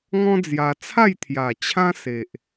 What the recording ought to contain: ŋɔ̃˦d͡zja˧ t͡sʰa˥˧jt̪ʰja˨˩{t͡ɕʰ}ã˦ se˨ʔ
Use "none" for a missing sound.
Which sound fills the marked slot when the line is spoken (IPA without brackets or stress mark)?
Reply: t͡ɕʰ